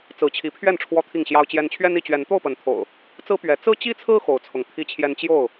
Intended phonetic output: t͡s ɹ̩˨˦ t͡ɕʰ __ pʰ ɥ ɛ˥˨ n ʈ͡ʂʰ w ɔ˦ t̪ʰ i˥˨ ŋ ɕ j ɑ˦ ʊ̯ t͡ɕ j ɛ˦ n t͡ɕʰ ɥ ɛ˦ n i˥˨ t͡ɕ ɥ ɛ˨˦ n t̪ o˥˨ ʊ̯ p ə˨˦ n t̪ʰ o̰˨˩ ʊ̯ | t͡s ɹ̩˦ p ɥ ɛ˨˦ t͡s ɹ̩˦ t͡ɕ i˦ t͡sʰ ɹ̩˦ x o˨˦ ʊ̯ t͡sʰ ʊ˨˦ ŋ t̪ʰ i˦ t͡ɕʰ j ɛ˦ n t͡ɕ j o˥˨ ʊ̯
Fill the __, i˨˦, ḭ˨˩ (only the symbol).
i˨˦